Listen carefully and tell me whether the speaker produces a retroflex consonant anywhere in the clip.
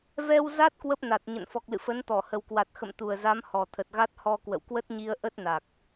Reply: no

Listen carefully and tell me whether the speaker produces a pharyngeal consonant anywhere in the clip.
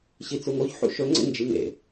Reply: yes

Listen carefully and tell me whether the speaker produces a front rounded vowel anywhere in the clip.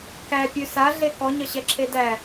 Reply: no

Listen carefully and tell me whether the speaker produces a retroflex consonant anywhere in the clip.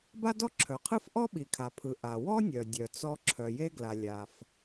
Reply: no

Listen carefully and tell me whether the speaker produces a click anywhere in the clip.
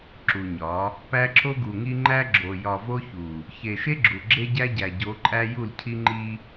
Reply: yes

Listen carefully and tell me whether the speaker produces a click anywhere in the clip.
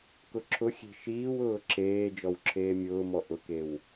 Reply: yes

